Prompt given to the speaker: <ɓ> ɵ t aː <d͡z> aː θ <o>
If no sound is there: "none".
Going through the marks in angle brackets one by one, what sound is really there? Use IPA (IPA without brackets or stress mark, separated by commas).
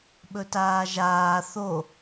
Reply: ɓ, ʒ, o